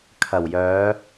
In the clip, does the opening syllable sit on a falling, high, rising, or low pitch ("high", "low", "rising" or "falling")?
low